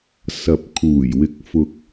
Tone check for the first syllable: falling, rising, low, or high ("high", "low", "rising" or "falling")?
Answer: low